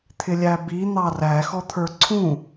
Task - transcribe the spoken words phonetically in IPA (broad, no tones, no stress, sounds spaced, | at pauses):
t̪ʰ ɪ lʲ æ b i n̪ ɑ r æ x ɔ t̪ʰ ə˞ ǀʰ ũ